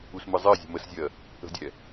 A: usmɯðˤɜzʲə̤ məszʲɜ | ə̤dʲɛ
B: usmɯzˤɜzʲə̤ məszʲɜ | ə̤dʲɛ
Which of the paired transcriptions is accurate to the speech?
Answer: B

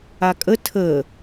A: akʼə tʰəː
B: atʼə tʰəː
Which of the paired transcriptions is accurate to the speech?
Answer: A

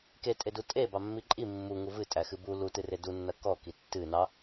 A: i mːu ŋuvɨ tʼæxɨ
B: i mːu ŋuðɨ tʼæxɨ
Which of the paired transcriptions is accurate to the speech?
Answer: A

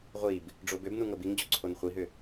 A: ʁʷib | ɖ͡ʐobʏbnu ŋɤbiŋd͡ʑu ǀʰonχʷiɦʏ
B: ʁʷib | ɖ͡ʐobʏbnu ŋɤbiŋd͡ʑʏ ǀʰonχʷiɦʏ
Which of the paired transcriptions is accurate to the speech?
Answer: A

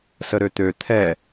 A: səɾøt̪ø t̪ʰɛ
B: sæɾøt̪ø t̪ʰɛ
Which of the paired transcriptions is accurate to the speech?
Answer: A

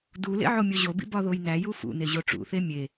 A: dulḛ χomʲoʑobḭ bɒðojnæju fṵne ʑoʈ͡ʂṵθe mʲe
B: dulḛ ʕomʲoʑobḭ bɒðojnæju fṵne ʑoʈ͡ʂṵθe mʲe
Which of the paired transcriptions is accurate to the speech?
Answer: B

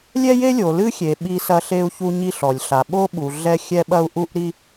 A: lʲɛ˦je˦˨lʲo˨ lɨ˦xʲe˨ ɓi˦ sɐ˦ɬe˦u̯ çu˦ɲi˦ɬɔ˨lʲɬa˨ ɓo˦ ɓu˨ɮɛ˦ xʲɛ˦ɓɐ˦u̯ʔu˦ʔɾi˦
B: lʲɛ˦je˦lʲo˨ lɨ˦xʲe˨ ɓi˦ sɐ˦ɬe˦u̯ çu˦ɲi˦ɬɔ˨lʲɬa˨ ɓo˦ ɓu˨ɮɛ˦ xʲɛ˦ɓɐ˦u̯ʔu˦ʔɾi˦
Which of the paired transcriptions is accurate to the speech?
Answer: B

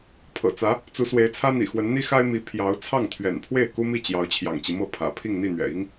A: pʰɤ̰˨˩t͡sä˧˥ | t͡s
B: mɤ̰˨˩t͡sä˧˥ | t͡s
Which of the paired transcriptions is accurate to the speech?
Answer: A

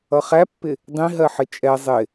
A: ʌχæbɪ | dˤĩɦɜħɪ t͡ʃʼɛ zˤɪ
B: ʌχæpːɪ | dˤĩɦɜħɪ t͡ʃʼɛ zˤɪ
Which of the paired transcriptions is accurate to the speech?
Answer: B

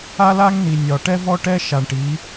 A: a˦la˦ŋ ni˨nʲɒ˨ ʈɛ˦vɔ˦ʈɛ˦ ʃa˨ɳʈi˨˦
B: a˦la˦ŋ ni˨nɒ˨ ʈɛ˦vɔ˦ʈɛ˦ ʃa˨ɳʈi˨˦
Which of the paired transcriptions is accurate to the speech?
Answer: A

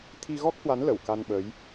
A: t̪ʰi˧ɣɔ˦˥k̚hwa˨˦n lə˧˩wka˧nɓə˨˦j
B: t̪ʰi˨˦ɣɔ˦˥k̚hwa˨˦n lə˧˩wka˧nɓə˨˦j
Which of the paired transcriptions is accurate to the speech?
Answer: A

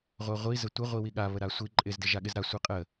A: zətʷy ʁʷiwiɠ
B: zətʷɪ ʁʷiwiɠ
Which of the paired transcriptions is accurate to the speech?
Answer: B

